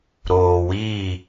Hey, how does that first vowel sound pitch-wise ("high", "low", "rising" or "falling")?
low